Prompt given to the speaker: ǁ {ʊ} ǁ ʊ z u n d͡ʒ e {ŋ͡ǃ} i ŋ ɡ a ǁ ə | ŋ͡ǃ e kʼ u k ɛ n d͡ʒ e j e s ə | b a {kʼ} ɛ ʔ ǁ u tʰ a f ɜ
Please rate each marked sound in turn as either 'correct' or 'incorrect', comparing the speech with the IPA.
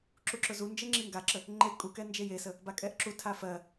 incorrect, incorrect, correct

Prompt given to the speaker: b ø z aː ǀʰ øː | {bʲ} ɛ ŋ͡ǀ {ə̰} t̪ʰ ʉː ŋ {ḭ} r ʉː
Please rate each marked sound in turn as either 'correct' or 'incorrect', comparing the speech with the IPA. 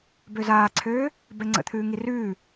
incorrect, correct, incorrect

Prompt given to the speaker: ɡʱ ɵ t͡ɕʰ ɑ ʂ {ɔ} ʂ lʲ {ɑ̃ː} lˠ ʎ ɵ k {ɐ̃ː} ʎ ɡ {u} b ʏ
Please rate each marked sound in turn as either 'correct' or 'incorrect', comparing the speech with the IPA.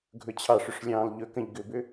incorrect, correct, incorrect, incorrect

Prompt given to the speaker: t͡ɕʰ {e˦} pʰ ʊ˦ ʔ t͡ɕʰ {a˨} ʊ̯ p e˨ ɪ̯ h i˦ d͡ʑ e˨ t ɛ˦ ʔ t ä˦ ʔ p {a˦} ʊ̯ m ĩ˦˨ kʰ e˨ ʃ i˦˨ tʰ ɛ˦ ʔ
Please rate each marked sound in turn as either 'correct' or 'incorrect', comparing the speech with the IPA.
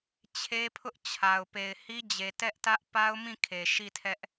correct, correct, correct

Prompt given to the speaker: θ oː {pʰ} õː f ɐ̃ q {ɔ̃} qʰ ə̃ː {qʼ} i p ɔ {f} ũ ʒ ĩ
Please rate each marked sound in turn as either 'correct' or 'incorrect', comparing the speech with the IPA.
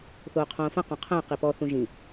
incorrect, correct, incorrect, incorrect

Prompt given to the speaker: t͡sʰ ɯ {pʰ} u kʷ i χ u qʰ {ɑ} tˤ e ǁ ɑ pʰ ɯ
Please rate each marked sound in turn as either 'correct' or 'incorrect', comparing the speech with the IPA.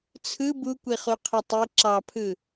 incorrect, incorrect

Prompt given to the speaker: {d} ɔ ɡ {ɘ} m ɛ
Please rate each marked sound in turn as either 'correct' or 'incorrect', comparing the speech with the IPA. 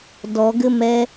correct, correct

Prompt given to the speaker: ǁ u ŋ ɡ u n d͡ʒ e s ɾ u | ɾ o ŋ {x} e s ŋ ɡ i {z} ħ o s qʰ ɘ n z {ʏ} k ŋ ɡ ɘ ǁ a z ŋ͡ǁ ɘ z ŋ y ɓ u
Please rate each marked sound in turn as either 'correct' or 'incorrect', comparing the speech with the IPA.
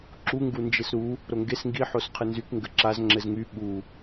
incorrect, incorrect, incorrect

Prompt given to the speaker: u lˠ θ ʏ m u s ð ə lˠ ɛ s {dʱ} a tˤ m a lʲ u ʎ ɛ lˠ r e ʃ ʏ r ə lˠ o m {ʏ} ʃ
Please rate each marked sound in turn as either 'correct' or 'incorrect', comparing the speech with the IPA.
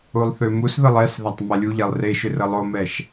incorrect, incorrect

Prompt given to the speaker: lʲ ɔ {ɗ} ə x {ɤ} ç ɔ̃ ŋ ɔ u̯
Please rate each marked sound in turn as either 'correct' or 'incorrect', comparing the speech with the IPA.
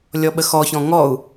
incorrect, incorrect

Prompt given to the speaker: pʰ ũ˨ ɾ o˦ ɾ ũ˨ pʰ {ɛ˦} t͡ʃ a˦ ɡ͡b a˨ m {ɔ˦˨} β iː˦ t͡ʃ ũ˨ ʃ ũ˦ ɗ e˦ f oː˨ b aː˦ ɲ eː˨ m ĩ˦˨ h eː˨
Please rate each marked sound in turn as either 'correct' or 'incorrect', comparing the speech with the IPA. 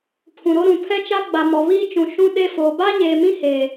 correct, incorrect

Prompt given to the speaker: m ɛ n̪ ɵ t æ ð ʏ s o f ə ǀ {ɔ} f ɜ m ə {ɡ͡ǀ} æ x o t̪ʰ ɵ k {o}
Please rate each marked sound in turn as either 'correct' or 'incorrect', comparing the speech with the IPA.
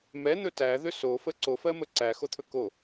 incorrect, incorrect, correct

